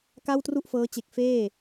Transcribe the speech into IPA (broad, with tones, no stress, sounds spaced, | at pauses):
k a˥˩ w t r u˥˩ ʔ f ɤː˦˥ t͡ɕ e˨˩ k̚ f eː˥˩